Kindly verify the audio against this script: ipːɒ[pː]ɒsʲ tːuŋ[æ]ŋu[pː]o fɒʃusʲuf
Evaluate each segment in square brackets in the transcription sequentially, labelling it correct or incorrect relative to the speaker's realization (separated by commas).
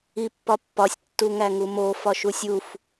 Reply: correct, correct, incorrect